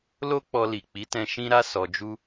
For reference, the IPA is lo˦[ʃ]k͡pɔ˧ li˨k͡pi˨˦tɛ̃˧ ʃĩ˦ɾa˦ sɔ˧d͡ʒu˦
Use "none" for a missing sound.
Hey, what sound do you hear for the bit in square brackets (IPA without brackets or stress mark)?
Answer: none